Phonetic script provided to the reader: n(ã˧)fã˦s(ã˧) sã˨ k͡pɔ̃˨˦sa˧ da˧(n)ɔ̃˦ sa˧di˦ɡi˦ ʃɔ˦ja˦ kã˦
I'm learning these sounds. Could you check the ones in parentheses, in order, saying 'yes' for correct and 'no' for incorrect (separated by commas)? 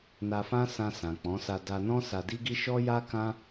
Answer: no, yes, yes